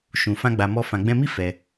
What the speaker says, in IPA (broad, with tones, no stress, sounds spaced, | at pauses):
ʃ ũ˨ f ã˧ ɡ͡b a˨ m ɔ˧ f ã˨ ɡ͡b ɛ̃˧ m i˦ f ɛ˧